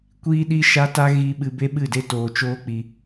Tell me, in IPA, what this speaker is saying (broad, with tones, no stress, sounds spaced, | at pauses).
kʷ iː˦ ɗ i˦ ʃ a˦ t a˦ ɣ i˦ ɓ ɨ˧ b e˦ ɓ ɨ˦˨ d e˦ t oː˧ t͡ʃ oː˦ k͡p i˧